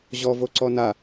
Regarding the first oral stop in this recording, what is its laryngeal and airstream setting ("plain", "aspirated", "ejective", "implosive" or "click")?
click